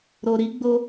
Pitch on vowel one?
low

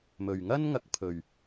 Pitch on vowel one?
low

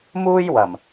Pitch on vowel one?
high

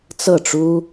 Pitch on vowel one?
falling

